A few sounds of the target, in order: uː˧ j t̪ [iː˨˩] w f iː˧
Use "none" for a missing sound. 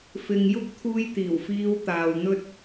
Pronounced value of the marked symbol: iː˨˩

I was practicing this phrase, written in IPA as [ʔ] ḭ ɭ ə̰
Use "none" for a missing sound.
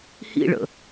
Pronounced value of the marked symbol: h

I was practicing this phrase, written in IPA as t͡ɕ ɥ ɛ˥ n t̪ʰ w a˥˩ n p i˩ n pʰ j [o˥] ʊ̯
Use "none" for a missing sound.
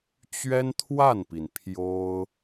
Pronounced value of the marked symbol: o˥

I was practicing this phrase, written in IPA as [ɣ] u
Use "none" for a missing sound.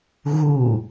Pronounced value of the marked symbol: ɣ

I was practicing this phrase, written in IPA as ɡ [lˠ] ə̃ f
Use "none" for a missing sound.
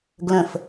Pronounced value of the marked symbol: l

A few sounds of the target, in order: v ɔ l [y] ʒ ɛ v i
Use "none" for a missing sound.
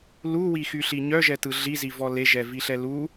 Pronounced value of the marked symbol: e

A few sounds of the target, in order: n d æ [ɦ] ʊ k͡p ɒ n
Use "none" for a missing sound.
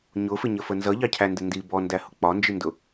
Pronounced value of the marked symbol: h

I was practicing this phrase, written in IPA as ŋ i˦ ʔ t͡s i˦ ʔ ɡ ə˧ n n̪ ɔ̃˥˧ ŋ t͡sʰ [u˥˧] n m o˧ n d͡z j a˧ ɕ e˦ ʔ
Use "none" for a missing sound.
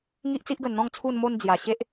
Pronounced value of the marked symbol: u˧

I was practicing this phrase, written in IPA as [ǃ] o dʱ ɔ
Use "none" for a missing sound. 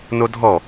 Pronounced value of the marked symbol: n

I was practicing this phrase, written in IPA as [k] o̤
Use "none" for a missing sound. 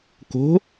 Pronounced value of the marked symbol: k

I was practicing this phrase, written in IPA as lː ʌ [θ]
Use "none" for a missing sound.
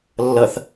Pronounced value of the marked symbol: θ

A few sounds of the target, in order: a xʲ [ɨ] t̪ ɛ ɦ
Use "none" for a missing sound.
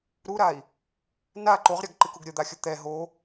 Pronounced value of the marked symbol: ə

